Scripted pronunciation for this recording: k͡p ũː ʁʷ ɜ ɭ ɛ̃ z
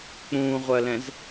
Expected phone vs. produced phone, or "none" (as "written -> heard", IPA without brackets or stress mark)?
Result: ɭ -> l